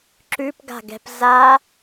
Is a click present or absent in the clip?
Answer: present